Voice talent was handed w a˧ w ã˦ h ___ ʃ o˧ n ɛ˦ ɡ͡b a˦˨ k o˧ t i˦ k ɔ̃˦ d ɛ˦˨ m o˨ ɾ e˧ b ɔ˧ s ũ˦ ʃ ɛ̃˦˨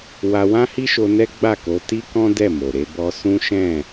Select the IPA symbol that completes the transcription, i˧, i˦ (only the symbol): i˦